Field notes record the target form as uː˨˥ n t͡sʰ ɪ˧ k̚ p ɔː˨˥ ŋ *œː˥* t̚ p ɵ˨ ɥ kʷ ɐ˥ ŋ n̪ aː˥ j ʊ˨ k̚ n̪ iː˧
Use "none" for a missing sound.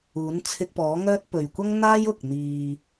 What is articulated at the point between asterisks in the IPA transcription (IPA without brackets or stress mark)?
œː˥